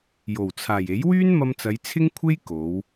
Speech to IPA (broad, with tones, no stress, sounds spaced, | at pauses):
j o˨˩ w t͡sʰ aː˨˩ j e˨˥ j w yː˥ n m ɐ˧ m t͡s ɐ˨˧ j t͡sʰ ɪ˥ ŋ kʷʰ e˥ j k o˨˧ w